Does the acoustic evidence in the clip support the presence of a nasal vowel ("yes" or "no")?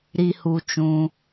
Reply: yes